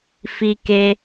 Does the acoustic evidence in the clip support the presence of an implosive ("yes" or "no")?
no